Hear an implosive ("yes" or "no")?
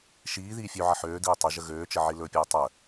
no